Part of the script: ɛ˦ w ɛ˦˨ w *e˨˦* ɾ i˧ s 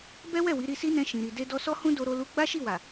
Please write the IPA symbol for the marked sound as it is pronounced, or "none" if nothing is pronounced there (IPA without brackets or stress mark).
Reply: i˨˦